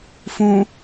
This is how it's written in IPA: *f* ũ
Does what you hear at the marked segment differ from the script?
no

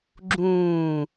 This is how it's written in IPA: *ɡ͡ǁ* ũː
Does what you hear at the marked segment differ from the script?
no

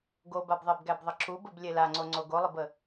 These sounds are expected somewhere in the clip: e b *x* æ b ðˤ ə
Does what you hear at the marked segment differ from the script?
yes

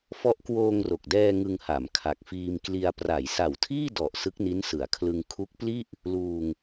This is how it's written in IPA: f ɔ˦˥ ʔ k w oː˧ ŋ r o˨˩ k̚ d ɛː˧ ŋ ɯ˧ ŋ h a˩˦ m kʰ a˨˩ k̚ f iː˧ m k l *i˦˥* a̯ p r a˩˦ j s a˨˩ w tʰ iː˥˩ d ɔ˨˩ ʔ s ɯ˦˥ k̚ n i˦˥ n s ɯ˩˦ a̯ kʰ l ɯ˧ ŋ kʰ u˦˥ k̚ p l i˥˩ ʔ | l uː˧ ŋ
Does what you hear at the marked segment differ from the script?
yes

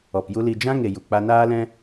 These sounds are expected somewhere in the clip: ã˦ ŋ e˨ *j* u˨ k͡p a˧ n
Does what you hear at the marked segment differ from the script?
no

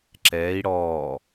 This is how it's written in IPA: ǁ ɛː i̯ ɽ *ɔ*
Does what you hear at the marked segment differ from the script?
yes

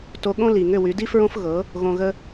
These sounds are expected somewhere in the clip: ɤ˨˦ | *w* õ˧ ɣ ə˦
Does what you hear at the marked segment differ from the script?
yes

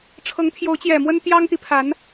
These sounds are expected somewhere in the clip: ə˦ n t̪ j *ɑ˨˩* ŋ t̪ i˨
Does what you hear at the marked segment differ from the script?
yes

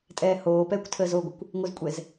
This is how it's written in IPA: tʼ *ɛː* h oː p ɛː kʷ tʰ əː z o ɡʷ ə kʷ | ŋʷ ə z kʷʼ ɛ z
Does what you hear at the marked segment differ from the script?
no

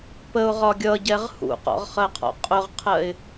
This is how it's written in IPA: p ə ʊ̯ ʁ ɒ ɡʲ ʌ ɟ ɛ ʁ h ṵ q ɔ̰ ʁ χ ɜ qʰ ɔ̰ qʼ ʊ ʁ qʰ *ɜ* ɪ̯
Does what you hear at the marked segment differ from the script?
no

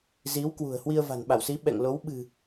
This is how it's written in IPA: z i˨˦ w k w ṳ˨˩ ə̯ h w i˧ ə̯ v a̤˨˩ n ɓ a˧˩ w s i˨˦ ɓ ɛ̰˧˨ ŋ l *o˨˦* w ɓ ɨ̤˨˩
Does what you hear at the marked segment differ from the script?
no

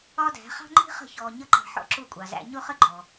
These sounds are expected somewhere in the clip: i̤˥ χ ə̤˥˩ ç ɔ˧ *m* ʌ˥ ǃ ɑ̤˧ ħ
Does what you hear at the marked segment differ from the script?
yes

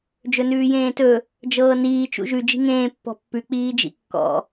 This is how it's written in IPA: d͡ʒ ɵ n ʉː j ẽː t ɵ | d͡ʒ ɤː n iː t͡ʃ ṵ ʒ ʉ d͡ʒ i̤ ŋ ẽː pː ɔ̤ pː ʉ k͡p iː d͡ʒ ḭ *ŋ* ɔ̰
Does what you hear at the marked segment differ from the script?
yes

